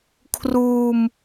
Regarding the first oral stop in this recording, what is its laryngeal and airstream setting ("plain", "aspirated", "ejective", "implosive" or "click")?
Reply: aspirated